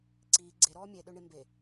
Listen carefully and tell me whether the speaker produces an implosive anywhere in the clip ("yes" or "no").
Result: yes